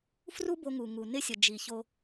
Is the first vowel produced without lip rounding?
no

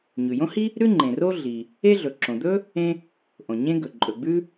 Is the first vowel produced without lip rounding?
no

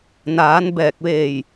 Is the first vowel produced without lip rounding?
yes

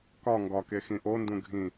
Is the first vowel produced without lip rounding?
no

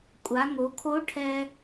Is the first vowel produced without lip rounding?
yes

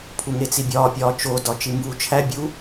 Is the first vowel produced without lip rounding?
no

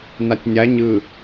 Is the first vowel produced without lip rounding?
yes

